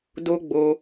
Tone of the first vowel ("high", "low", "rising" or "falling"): high